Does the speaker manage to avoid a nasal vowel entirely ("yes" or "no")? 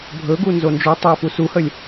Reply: yes